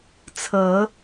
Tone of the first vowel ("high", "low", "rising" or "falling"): rising